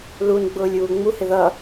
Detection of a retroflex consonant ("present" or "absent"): absent